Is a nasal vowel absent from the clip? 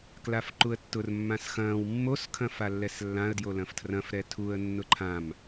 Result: no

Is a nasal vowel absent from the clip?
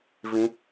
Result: no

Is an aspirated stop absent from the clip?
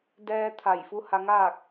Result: no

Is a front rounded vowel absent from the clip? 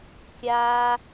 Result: yes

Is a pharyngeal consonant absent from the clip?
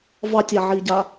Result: no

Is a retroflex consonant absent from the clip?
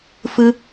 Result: yes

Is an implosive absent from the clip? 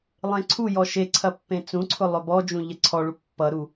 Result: yes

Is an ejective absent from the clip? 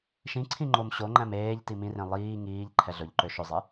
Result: yes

